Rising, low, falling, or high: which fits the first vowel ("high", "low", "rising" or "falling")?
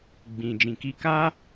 low